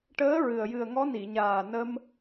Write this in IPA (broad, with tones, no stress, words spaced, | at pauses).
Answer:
ʈəː˧˥ ɹɨ˨˩ə̯ jɨ˨˩ə̯ŋɔ˧˥ ni˨˩˨ɲaː˨˩ nə˧m